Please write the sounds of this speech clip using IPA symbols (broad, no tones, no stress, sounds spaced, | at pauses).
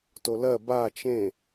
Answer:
t o l ɜ b a t͡ʃ ẽ